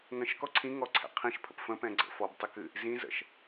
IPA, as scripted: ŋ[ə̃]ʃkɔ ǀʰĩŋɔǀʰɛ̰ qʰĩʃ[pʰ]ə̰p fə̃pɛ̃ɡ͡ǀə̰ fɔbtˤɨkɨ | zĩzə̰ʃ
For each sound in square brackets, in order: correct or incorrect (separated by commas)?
correct, correct